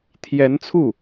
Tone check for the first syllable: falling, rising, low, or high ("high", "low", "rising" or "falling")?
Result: rising